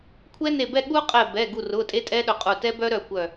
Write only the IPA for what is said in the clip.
kʷʰ ɛ˦˥ n e˧˩ b ɛ˥˨ ɠ u˦˥ qʼ ɛ˧˩ b ɛ˩˧˩ ɡ u˧˩ r ʊ˩˧˩ tʼ e˦˥ tʼ ɛ˦˥ ɗ ʊ˧˩ qʼ u˧˩ t ɛ˦˥ b œ˦˥ ɾ œ˧˩ kʷ œ˧˩

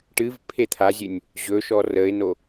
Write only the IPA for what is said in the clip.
ʈ ɨ v pʰ e t̪ʰ a zʲ ɨ nʲ | ʑ ɵ ʃ ɔ r ə ɪ̯ n o

